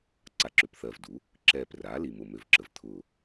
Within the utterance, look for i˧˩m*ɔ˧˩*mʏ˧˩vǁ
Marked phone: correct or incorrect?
incorrect